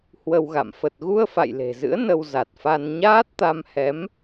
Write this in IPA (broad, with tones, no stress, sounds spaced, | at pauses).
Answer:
h w ə˧ w ɣ a̰˧˨ m f ə˨˩ t̚ ɣ u˧ ə̯ f a̰˧˨ j l e̤˨˩ z ɨ̰˧˥ ə̯ n ə˧ w z a˨˩ t̚ f a˧ n ɲ aː˦˥ t̚ t̪ a˧ m h ɛ˨˦ m